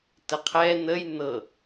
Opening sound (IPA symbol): t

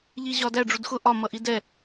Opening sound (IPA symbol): ʎ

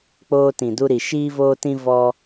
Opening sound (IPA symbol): k͡p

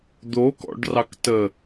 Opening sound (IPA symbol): d̪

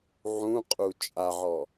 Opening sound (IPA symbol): ʕ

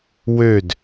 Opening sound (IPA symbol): w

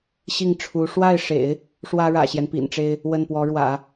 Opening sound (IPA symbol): ɕ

